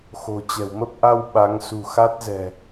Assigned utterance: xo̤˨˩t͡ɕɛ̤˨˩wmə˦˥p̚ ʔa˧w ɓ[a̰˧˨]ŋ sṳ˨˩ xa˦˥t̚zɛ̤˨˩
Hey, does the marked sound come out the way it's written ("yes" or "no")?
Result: no